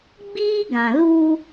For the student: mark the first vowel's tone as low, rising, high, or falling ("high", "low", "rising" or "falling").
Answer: high